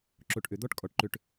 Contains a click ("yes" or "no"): yes